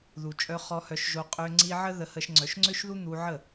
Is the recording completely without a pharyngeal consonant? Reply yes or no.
no